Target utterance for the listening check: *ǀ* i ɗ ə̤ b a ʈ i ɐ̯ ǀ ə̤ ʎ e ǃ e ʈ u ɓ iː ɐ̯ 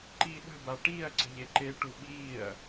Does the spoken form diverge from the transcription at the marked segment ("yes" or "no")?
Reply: yes